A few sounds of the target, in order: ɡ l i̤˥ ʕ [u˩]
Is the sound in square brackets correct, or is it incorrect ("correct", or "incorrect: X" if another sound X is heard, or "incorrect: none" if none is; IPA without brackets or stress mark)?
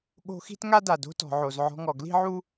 incorrect: u˥